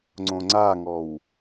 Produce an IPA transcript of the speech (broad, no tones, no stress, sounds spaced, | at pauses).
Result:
ŋ͡ǀ õ ŋ͡ǀ a ŋ ɔ w